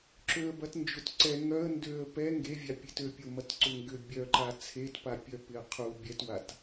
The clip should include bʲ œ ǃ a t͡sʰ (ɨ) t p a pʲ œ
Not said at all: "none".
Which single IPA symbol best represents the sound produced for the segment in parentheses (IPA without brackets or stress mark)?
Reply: e